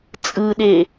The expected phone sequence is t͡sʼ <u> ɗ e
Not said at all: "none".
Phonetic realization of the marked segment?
ɯ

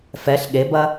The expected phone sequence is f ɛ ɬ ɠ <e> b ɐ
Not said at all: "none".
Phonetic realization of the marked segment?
e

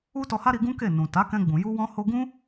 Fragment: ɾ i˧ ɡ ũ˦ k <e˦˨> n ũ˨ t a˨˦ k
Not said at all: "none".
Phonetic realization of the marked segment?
e˦˨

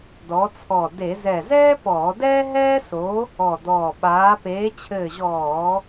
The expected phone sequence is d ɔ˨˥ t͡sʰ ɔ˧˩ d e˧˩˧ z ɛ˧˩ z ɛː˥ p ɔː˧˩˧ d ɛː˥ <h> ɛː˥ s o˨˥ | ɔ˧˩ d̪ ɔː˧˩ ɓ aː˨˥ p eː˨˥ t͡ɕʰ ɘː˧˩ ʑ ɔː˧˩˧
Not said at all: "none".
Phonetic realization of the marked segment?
ɦ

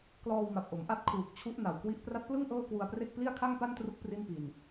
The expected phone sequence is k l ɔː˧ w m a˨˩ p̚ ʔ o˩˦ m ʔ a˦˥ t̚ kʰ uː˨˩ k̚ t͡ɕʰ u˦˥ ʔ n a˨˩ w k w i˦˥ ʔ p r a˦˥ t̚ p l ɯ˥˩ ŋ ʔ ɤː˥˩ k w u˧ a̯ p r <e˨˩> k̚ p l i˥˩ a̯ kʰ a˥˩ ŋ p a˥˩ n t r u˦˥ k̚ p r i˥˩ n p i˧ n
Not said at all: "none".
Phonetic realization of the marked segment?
e˥˩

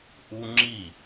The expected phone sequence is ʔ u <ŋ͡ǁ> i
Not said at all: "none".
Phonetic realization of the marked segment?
ŋ͡ǁ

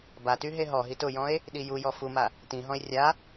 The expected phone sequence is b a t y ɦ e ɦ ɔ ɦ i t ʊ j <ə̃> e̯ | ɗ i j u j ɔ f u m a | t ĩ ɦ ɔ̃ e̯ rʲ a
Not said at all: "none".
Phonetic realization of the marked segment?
ɔ̃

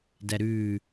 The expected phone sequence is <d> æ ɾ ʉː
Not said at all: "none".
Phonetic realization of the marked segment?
d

